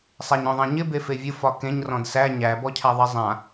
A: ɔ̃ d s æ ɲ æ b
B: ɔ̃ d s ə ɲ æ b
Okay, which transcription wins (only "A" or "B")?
A